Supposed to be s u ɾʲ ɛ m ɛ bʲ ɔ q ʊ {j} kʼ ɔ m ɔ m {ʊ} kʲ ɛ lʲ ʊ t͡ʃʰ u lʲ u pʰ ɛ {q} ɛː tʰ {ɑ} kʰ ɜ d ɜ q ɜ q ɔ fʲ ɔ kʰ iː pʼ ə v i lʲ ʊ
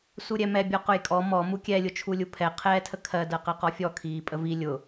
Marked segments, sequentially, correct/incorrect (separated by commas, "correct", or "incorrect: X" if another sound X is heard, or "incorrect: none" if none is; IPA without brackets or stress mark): correct, incorrect: u, incorrect: qʰ, incorrect: ə